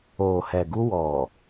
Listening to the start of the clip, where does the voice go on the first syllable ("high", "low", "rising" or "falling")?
low